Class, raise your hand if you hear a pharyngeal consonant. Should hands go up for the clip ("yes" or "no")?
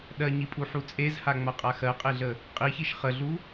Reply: yes